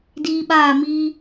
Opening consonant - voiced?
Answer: yes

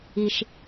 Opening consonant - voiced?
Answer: no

